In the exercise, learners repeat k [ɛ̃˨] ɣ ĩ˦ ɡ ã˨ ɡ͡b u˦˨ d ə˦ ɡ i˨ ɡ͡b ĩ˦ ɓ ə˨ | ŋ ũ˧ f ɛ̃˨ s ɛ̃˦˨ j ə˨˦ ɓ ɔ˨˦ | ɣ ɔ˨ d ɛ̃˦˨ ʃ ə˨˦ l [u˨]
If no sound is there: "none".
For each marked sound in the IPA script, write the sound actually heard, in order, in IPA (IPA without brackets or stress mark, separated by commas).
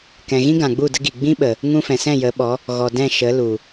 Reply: ɛ̃˨, u˨